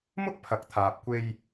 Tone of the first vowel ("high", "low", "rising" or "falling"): high